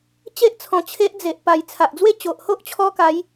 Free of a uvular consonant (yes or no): yes